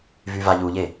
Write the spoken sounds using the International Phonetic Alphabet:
v y v a ʎ u ʎ e

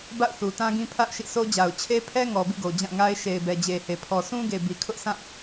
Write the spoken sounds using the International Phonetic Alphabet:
b a̰˦˨ ʊ̯ θ u˨ t ã˦ ɡ ĩ˦ pʰ a̰˦˨ ʊ̯ ʃ ḭ˦˨ s o˦ d͡ʑ a˨ ʊ̯ t͡ɕʰ e˦ pʰ ɛ˦ ŋ ɔ˨ b ḭ˦˨ ɡ o˨ d͡ʑ ã˦˨ ŋ a˦ ɪ̯ ʃ e˨ ɪ̯ b ɛ˨ d͡ʑ e˨ h e˨ pʰ ɔ˨ sʰ ũ˦ ɡ e˨ b i˨ kʰ ʊ˦ ʔ sʰ ã˦˨

